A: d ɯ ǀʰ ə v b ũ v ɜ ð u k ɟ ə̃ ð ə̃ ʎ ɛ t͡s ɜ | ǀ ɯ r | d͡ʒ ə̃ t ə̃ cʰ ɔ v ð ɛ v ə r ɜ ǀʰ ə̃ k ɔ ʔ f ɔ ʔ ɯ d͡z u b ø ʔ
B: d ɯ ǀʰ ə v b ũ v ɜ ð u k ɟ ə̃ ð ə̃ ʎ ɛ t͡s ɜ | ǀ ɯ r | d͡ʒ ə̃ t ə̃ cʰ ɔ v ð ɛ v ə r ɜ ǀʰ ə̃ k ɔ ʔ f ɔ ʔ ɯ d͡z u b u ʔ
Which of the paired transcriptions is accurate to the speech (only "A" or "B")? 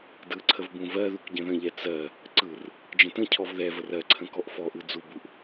B